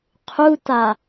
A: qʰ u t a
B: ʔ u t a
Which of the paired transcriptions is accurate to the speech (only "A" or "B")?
A